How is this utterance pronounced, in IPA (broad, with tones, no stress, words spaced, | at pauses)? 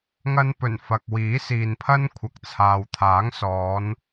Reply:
ŋɐ˧npɵ˨˩n fɐ˨k̚wiː˨˥siː˨npʰɐ˥n kʷʰɐ˨˥k̚t͡sʰaː˨w t̪ʰaː˨˥ŋsɔː˨˧n